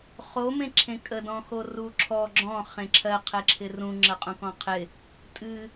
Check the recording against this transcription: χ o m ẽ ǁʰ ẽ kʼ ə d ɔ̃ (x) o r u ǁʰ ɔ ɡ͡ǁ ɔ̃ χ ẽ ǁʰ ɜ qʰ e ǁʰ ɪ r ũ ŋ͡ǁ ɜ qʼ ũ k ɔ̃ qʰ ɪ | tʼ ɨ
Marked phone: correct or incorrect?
correct